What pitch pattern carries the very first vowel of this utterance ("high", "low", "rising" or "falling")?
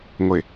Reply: low